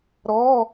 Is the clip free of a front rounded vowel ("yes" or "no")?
yes